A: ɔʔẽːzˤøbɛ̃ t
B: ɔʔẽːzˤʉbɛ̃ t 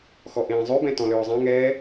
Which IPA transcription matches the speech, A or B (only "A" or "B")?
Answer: B